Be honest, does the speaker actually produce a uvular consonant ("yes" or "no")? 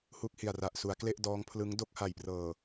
no